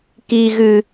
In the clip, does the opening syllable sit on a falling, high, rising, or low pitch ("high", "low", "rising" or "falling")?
low